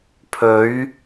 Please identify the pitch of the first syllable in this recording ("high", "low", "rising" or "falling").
rising